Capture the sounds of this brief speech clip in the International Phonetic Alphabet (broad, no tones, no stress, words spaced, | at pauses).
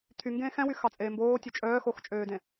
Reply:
t̪ʰy ŋɡẽːxɛ̃wy xɑt͡sʼeːmboː tʲøt͡ʃʼœː xoxt͡ʃʼøːdẽ